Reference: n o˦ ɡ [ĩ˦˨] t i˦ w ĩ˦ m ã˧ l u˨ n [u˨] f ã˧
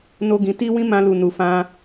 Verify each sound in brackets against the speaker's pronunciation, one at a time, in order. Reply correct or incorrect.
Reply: incorrect, correct

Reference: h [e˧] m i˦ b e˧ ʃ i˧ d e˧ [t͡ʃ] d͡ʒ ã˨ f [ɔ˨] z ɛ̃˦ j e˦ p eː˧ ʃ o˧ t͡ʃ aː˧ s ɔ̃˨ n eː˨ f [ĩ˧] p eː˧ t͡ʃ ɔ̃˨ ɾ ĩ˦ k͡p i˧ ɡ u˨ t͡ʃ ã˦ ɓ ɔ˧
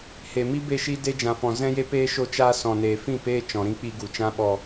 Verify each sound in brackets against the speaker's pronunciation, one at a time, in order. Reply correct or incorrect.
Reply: incorrect, incorrect, incorrect, incorrect

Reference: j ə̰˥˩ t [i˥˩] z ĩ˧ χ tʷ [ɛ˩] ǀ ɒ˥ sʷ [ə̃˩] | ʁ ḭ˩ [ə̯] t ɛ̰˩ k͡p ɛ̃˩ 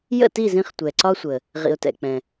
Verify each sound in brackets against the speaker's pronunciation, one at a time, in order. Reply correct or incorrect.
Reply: correct, correct, incorrect, incorrect

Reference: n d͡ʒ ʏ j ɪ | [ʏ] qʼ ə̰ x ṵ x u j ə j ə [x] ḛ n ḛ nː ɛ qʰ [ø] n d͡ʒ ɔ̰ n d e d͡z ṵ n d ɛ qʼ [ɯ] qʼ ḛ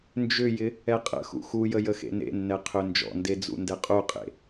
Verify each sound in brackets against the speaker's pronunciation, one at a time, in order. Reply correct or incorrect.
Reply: incorrect, correct, correct, incorrect

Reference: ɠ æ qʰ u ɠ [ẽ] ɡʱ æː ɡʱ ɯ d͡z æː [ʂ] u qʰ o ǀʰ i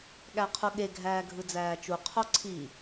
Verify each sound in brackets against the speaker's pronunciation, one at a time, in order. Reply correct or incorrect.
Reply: incorrect, incorrect

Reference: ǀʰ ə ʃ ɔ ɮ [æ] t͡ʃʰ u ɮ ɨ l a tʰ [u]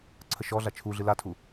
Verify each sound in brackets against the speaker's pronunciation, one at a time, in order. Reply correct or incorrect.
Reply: incorrect, correct

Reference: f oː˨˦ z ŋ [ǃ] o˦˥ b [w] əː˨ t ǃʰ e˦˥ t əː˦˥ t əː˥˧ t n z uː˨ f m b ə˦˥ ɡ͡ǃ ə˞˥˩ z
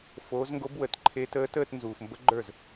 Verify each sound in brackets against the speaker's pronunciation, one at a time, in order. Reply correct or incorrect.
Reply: incorrect, correct

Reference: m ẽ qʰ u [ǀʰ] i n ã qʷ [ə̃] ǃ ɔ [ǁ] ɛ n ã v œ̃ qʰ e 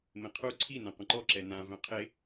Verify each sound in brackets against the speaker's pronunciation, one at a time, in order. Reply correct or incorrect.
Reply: correct, correct, correct

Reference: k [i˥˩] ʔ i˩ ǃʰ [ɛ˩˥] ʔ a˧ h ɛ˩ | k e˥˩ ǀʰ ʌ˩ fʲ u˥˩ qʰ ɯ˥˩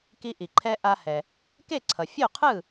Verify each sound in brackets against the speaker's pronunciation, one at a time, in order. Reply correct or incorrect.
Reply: incorrect, incorrect

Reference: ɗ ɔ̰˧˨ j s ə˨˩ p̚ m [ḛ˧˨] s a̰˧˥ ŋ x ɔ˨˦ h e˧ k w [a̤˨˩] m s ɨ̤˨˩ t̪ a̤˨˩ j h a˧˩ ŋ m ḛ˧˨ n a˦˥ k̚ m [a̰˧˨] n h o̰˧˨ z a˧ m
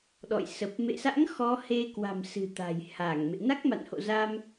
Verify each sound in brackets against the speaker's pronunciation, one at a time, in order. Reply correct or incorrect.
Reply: correct, correct, correct

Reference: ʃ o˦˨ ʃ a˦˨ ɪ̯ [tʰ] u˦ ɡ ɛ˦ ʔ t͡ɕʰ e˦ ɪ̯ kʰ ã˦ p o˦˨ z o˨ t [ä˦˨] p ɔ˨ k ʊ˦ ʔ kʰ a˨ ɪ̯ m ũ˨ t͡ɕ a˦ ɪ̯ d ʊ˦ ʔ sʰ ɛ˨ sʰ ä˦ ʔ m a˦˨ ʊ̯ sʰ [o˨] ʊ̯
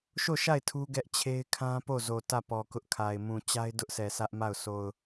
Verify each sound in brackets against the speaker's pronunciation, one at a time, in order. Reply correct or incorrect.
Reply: correct, correct, correct

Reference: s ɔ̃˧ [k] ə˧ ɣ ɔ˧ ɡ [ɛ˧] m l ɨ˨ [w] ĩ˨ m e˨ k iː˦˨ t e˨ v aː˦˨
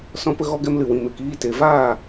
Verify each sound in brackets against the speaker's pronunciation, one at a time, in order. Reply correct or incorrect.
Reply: incorrect, correct, correct

